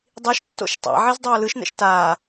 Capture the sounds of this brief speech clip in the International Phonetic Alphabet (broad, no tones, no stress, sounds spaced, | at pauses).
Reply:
dˤ i ʃ tː o̰ ʃ tˤ a̰ ʕ i z dˤ oː l ɯ ʃ n ɛ̰ ʃ t aː